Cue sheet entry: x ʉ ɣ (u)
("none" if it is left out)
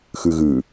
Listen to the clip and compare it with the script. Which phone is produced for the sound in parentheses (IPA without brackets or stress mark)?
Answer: ʉ